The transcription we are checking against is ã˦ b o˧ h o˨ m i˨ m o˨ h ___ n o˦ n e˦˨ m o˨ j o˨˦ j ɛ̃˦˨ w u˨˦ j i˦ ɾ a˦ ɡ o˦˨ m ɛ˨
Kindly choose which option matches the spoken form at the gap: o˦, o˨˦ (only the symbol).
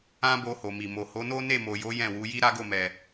o˨˦